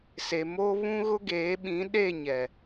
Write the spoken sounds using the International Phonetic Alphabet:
se˨mo˦ βũ˦ɣʊ˦ɡeː˨˦ ɓĩ˨˦ɗe˦˨ɲɛ˨

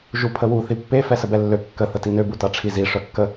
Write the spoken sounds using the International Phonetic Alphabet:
ʒupʰəwu θipːe fɛsəbɛlːø kːə θətinø butaʈ͡ʂʰizi ʂœkːə

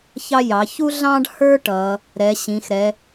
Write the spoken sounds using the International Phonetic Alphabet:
çɑ˦jɑ˩˧ çu˦ɮɑ̃˦ɖhə˞˦ ʈʌ˩˧ | ɾɛ˩˧ɕĩ˩˧xɾɛ˩˧

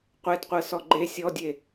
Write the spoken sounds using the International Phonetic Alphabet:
qʷɛdqʷɤsɔ ɡ͡ǃe sʲɔdʲe

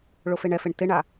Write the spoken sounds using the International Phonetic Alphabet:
ɭofeɳɛfeɳ tɪɳa

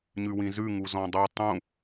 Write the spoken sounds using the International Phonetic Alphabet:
ɲʉwĩzʉ ŋuzɔ̃dˤu tˤũ

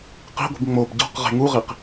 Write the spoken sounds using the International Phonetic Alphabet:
qi̤ɡʷi̤b ŋ͡mob ɟɔ̤q ʁe̤ŋuʁiq

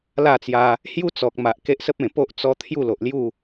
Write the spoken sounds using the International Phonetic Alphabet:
la˥˧t͡sja˧ | hju˦t͡sɔ˨k̚ma˨ʔ ke˦ʔsə˦p̚ẽ˨˩po˦ʔ t͡sɔ˦ t̪ʰju˥˧lo˨ʔlju˥˧

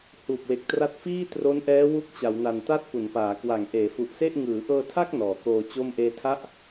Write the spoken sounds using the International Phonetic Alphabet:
huː˨˩p̚we˨˩k̚tra˦˥t̚ fiː˥˩ tro˦˥nʔɛː˦˥ wu˥˩k̚t͡ɕa˩˦wna˨˩n ta˦˥t̚ pu˩˦npaː˩˦kwa˨˩ŋ ʔeː˩˦fu˨˩ʔse˥˩ʔ ŋɯː˩˦ʔɤː˧tʰa˥˩k̚ nɔː˩˦koː˧t͡ɕo˥˩m ʔeː˧tʰa˥˩ʔ

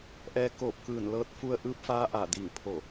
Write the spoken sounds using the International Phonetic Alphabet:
ʔɛː˧koː˧˩p̚kɯː˧˩nlɤː˧˥t̚ fu˧ə̯ʔɯː˧˥p̚faː˧˥ ʔa˧˩di˧˩ŋ pʰo˧˩

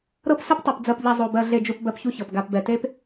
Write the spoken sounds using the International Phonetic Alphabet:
ɾɤ˦psɘ˦ptˤɤ˨p d͡zɜ˨pʎɛ˨ zˤo˨ bɜ˨ ɮe˨d͡ʒu˨p bɜ˦pçu˦çɤ˨p ɡa˨pbɛ˨te˦p

